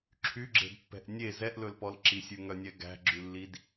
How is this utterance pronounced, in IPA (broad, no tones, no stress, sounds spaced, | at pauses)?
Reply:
ǁʰ y ɡ͡ǁ e̤ d pː ɛ̤ ʔ nʲ e z ɛ ʔ l ɵ l p ɔ l ǁ i sʲ ʉ ŋ œ nʲ ɛ ɡ æ̤ ɡ͡ǁ ʉ lː i d